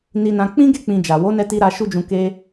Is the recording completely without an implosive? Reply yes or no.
yes